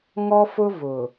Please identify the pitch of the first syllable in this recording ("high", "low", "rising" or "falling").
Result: high